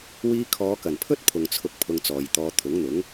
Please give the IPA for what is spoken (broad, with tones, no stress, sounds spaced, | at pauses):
w iː˧ kʰ ɔː˨˧ k ɐ˨˩ n pʰ ɵ˥ t̚ pʰ ʊ˨ ŋ t͡sʰ ʊ˧ k̚ pʰ ʊ˧ ŋ t͡s ɔː˨ j t̪ ɔː˧ t̪ʰ ʊ˨˥ ŋ n̪ ʊ˨˥ ŋ